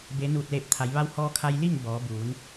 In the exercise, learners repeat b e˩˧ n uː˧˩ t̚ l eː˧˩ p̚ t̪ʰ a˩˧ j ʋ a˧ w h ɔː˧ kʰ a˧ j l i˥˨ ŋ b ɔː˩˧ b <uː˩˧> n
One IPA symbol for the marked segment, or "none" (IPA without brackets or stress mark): uː˩˧